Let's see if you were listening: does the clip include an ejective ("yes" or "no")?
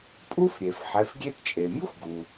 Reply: yes